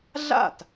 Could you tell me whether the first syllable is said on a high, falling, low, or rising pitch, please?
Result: falling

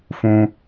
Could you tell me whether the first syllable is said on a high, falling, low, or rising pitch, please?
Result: high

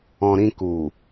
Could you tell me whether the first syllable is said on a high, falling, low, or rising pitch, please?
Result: low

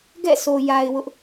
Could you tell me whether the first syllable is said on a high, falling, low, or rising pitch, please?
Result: falling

